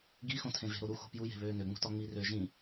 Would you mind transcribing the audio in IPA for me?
ɡ i x õ tʰ ẽ v e̤ ɾ o ɾ u x o̤ p j u j e̤ β øː n ø ŋ͡m ṳ t ɒ ŋ͡m i r ø ʒ ĩ

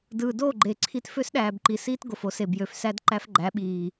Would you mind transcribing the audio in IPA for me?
d ɯː˨ d o˦˨ ɡ͡ǃ e˨ ǀʰ i˦ t f ø˦ s ɗ æː˨ b ǃ i˨ s iː˦ t ɡ o˨ f o˦ s e˨ b j ø˨ f s æ˦ d ǃ æ˦ f ɡ͡ǃ æ˨˦ ɓ iː˨

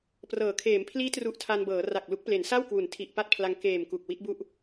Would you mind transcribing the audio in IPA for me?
p r ɤː˩˦ kʰ eː˩˦ m pʰ l iː˦˥ t r u˨˩ ʔ tʰ a˧ n b ɤː˩˦ r a˨˩ k̚ l u˦˥ k̚ p l e˩˦ n s a˥˩ w k w u˩˦ n tʰ i˨˩ ʔ p a˥˩ t̚ pʰ l a˧ ŋ k eː˨˩ m k u˨˩ k̚ w i˦˥ t̚ b u˥˩ ʔ

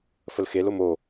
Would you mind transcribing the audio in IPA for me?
f ə l x e l o m o

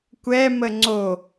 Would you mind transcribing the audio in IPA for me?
kʷ ɛ m ə ŋ͡ǀ o

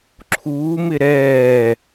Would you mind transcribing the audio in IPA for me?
ǁʰ uː m ɪ ɾ ɛː

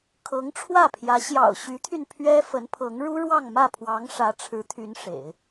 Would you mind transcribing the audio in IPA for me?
kʰ ɤ˧˥ ŋ ʈ͡ʂʰ w ä˥˩ pʰ j ä˧˥ ɕ j ɑ̰˨˩ ʊ̯ ɕ y˧˥ t̪ʰ y˧ n pʰ ɥ ɛ˥ f ə˧˥ n pʰ ɤ˧˥ ŋ ɻ u˥ ɻ w ɑ˥˧ ŋ m ä˥˩ pʰ w ɑ˧˥ ŋ ʂ ä˧˥ ʈ͡ʂʰ ɻ̩˧˥ t̪ʰ y˧˥ n ʂ ḛ˨˩˦ ɪ̯

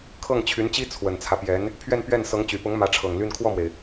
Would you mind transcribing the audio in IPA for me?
kʰ ɤ˥˩ ŋ t͡ɕʰ y˧˥ n t͡ɕ i˥ t͡sʰ w ə˨˩ n t͡sʰ ä˦ p j ɛ˧˥ n | pʰ ɥ ɛ˥˧ n p ɥ ɛ˥˩ n s ɤ˧˥ ŋ t͡ɕ y˨˩ p ʊ˧˥ ŋ m ä˧˥ ʈ͡ʂʰ ɤ˨˩ ŋ l y˥˧ n kʰ w ɔ˥˩ m w e˩ ɪ̯

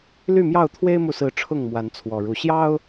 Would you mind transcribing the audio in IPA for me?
l y˥˨ m j ɑ˥˨ ʊ̯ t̪ʰ w e˦ ɪ̯ m u˨ s ɹ̩˨˦ ʈ͡ʂʰ ʊ˥˨ ŋ m w a˨˦ n t͡sʰ w ɔ˨˩ ɻ u˨˦ ɕ j ɑ˦ ʊ̯

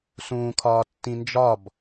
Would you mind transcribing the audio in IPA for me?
s ũː kʰ ɒː tː ĩ n d͡ʒ ɒ b

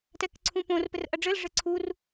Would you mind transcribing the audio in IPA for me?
t ɛ k ǀʰ ũ p õ r p ɘ r ʔ ɐ ɖ͡ʐ ɘ l ʐ ɘ ǀʰ u r

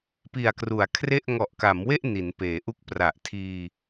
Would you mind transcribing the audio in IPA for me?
p i˨˩ a̯ k r u˩˦ a̯ kʰ r e˥˩ ʔ ŋ ɔ˨˩ ʔ k a˩˦ m w e˥˩ ʔ n i˩˦ n p eː˩˦ ʔ u˥˩ k̚ p r a˨˩ ʔ tʰ iː˧

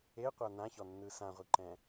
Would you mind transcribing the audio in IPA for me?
e qʷ a n ã ç ɔ nː ɯ s ã ʁʷ i ǃ ɛ̃

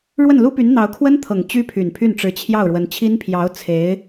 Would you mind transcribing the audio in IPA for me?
ɻ w ə˥˩ n l u˥ p y˧˥ n n̪ ɑ˧˥ ʊ̯ kʰ w ə˥ n t̪ʰ ɤ˨˩ ŋ t͡ɕ y˥ pʰ y˨˩ n pʰ y˥˩ n ʈ͡ʂ ɻ̩˧˥ t͡ɕʰ j ɑ˥˩ ʊ̯ ɻ w ə˧˥ n t͡ɕʰ i˥ n pʰ j ɑ˧˥ ʊ̯ t͡sʰ e˧˥ ɪ̯

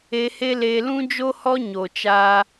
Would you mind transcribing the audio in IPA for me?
e˧ h e˦ l eː˧ l ũ˦ d͡ʒ o˦ h ɔ˦ ɲ o˨ t͡ʃ aː˦

